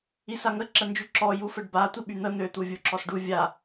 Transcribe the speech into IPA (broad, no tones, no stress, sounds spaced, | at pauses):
i s a ŋ ə ǁ ə n d͡ʒ y ǁ ɔ j u f ə ɖ b a tʷ i ɓ y n̪ ə n̪ ø t̪ u vʲ u ǁ ɔ s ɖ u vʲ a